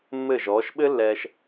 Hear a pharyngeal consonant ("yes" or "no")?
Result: no